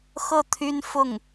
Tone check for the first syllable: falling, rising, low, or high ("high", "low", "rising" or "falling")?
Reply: falling